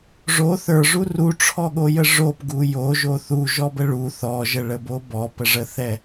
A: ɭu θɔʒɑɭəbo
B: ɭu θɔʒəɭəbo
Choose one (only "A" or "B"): B